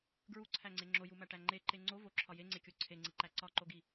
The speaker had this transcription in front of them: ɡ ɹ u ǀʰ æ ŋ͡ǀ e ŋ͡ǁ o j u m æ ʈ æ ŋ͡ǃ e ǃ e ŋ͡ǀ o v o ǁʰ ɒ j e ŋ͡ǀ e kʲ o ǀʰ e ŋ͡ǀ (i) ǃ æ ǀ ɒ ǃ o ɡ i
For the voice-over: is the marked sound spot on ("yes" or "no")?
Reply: yes